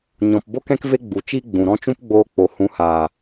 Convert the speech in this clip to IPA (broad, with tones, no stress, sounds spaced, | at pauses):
ɲ ɔ̃˨ p b o˦ k ɛ̃˦ k v e˦ ɡ͡b u˨ t͡ʃ i˦ ɡ͡b ũ˨ ɾ ɔ̃˦ t͡ʃ ũ˦ p ɡ͡b oː˧ k͡p o˨ h ũ˨˦ h aː˨